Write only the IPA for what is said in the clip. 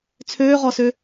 t͡sʰ øː ʁ ɔ s ø

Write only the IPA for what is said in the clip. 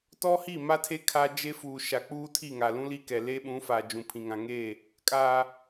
t ɔ˦ h i˦˨ m a˦ tʰ e˦ kʰ a˦ d͡ʒ e˦ f uː˨ ʃ a˨ k͡p uː˦ tʰ i˦˨ ŋ a˨ l ũ˦ l i˦ k ɛ˨ l e˦ ɓ ũ˨˦ f a˨ d͡ʒ ũ˨ pʰ ĩ˨ ŋ ã˨ ŋ eː˦˨ | kʼ aː˨

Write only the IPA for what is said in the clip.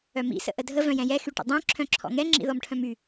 œ m ḭ s ə̰ ʔ ə dʱ ə v œ̃ j ɛ̃ j ɛ x y ʈ ə̰ dˤ œ̃ ǁʰ œ̃ ǁʰ ɔ̰ ŋ ɛ ŋ͡ǁ ḭ ð ɔ m ʈʰ œ̃ m y

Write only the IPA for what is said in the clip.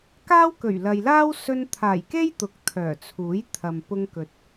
k aː˥ w k ɵ˨˩ ɥ l ɐ˨ j l aː˥ w s ɵ˧ n t̪ʰ aː˨˩ j k e˥ j t̪ ʊ˨ k̚ t̪ʰ œː˨˩ t͡sʰ uː˨˥ j t̪ʰ ɐ˨ m p ʊ˧ ŋ k ɵ˨ t̚

